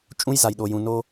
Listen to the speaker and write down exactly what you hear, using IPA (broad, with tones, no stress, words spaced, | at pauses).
t͡ʃʼũ˦jza˨jɗo˨jũ˨ no˦